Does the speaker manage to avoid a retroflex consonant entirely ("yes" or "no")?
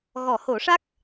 no